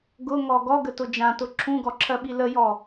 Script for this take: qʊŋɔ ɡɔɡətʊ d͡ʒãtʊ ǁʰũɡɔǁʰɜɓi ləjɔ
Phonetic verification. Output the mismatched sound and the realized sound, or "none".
q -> ɡ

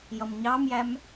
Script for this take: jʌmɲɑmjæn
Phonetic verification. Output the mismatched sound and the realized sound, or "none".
n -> m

